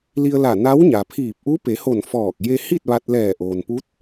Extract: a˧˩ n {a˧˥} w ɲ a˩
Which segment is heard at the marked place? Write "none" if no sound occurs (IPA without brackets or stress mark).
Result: a˧˥